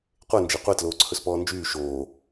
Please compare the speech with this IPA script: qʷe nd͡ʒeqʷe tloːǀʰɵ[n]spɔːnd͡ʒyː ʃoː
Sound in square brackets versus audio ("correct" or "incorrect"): incorrect